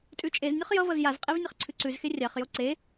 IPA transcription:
tʼ ʉ t͡ʃʼ e z nʲ o χ j ʌ v ʌ z j a z qʼ e v nʲ ʌ χ ǀʰ ʉ ǀ ʉ z x e rʲ a χ j o ǀ e

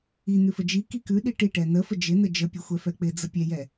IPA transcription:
i n̪ ʉ f ə d͡ʒ i k i k ʉ ɗ i ʈ i ʈ ɛ n̪ ə f ə d͡ʒ ɪ n̪ ə d͡ʒ ə pʲ ə xʷ ɛ f ɛ k͡p ɪ d͡z ə pʲ ɛ j ɛ

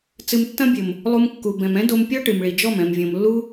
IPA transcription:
t͡s ɨ˧ m tː ɐ̃˦ bʲ ɘ˨ m | lˠ u˧ m kː u˨ b ɛ̃˨ m ɛ̃˦ d o˧ m pʲ ɔ˦ ʈ ɨ˨ m ɭ i˨ d͡ʒ ɔ˦˨ m ɛ̃˨ m vʲ õ˨ m lː u˦

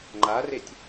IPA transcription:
ŋ͡ǃ a r e tʲ

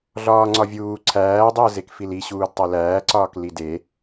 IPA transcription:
ɮ ɒː ŋ͡ǀ ɒ vʲ uː ǀʰ æː dˤ i ə̯ z e k f i l i ɕ uː d tˤ e l æː ǀ ɒː k l i d e

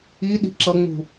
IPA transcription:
i ɗ i̤ ǁ ʌ ŋ͡m ṳ

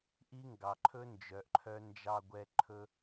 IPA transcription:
ʔ i˦ ŋ ɡ ɑ˨ ǃʰ ɵ˦ n d͡ʒ œ˨ ʔ ǃʰ œ˧ n d͡ʒ ɑ˧ ɡʷ ɛ˧ ǃʰ ɵ˦

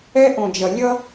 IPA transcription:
ɛ˦ ʔ õ˨ d͡ʒ ʌ˨ lʲ ʌ˦

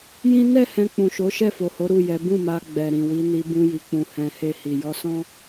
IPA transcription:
j ĩ˦ n ɛ˦˨ h ɛ̃˧ k͡p ũ˨ ʃ o˨˦ ʃ ɛ˦˨ f o˨ h o˨˦ ɾ u˦˨ j ɛ˨˦ b ũ˦˨ m a˧ ɡ͡b ɛ˨ ɾ ĩ˨ w i˨˦ n i˧ b ũ˧ j i˨ k͡p ũ˨ h ɛ̃˨ h e˧ h i˨ j ɔ˧ s ɔ̃˦

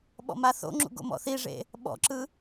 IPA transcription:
ɓ ɔ̰ m a θ o̰ ŋ͡ǁ ṵ ɡ o̰ m ɔ̰ θ i ʐ ḛ | ɓ ɔ̰ ǁ ɯ

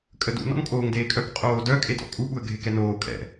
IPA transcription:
kʼ ə d ṵ n ɔ̰ n kʼ oː ŋ d eː kʼ œ k qʼ oː d œ kʼ e d ɔ̰ kʼ u ɓ u ə̯ ɡʱ e k ɛ n oː kʼ ɛ̰

